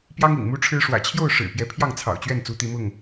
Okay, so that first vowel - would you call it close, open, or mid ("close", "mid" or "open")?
open